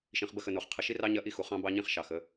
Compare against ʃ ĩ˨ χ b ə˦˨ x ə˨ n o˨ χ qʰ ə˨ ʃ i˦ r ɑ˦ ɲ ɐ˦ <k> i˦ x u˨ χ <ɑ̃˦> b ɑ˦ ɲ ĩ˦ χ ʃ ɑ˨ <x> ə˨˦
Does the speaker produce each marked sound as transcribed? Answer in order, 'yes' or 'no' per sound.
no, yes, yes

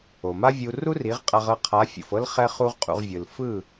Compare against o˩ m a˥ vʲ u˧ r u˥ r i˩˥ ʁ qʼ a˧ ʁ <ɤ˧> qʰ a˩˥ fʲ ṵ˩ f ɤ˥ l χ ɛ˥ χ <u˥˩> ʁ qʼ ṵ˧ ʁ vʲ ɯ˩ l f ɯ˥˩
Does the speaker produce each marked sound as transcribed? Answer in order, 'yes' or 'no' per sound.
no, no

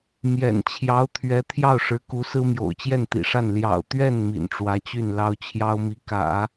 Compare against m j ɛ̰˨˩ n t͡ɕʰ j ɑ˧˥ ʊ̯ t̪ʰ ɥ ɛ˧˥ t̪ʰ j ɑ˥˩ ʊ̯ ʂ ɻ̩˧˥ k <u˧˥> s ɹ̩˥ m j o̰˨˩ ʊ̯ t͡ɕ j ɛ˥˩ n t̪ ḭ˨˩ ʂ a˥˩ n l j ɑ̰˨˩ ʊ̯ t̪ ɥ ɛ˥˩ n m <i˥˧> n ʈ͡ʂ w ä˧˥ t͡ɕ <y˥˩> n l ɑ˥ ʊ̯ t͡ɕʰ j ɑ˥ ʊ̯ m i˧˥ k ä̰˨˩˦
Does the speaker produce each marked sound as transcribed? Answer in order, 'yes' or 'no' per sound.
yes, no, yes

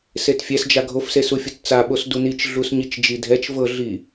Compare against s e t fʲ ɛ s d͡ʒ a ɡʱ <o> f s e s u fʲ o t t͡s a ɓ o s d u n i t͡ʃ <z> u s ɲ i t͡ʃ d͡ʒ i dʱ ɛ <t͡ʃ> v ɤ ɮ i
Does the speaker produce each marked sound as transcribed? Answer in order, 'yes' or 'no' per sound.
yes, no, yes

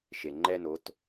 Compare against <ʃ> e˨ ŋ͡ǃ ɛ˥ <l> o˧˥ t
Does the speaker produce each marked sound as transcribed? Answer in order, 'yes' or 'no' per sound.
yes, no

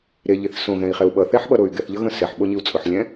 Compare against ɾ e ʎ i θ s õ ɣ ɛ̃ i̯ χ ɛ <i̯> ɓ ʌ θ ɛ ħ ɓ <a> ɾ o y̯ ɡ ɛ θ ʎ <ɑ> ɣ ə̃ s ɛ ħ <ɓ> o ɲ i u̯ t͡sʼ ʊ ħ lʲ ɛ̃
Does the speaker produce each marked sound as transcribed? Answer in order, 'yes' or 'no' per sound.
no, no, no, yes

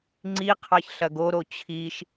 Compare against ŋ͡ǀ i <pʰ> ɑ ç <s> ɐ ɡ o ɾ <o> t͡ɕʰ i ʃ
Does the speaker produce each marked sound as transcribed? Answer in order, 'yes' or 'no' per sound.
no, no, yes

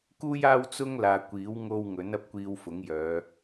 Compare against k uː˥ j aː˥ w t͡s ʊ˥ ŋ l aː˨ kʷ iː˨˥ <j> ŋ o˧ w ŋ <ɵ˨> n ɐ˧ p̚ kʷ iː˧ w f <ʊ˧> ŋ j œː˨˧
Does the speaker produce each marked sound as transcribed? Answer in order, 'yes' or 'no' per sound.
no, no, no

